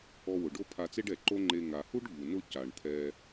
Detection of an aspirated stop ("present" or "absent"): present